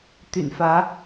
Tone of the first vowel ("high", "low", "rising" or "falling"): low